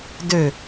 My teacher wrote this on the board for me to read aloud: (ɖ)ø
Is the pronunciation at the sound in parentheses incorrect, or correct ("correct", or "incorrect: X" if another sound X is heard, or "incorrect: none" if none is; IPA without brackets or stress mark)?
incorrect: d